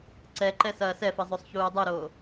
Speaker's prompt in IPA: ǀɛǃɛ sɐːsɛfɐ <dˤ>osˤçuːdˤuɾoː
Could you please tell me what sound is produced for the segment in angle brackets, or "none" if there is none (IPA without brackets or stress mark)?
zˤ